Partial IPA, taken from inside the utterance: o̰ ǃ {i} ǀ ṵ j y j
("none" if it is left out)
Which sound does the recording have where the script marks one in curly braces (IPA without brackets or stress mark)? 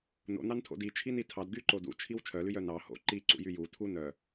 i